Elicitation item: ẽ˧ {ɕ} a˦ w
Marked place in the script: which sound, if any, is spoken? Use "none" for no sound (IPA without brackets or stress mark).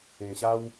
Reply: ɕ